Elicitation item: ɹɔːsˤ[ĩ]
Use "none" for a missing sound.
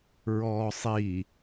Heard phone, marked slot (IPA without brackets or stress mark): i